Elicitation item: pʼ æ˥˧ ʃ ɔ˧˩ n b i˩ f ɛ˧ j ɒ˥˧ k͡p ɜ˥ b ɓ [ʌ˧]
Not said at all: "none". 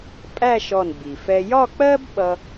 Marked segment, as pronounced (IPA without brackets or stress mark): ʌ˧